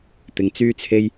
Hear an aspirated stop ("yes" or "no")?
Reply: yes